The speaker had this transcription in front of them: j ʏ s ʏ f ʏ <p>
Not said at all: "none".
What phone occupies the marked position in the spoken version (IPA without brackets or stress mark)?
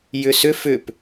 p